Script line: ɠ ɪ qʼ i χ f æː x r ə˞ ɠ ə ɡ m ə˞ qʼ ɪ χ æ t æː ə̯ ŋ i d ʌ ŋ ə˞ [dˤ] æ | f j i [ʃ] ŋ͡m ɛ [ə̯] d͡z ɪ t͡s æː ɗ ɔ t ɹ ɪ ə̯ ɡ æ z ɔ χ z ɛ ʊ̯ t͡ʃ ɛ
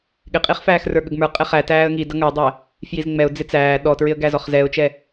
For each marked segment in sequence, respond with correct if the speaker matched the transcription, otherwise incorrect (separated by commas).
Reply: correct, incorrect, incorrect